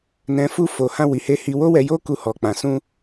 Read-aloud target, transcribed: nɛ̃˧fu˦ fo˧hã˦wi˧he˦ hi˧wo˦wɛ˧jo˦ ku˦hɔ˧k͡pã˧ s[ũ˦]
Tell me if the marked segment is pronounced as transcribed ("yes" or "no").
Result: yes